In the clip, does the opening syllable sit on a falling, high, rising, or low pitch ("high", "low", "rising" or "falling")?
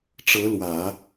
rising